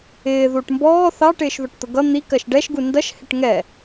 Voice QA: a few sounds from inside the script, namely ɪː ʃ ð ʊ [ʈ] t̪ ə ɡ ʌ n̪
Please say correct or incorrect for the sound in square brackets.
correct